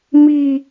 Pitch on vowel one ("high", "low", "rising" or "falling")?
high